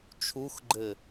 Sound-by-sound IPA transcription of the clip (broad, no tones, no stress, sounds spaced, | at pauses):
t͡ʃʰ u x ɡ͡ǃ ɘ